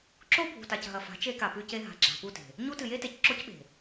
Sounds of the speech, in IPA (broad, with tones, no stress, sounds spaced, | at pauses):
ǁ o˦ bʱ ṳ˨ t a˨ c ɦ ɐ˨ f a̤˨˦ t͡ʃ e˦ k a˨ p ʉ˦ c e˦ ɦ a̤˨ ɡ͡ǁ a̤˨ p u˦˨ t e̤˨ | ɲ u˦ t ɨ˨ j e˦ t e˨ c ǁ o˦ c ɓ e̤˨